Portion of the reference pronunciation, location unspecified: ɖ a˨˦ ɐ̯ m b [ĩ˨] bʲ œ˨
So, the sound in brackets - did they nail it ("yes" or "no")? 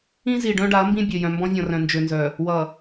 no